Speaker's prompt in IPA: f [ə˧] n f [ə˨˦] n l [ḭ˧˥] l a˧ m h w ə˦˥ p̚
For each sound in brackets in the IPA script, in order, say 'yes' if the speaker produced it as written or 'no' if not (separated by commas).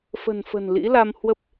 no, no, yes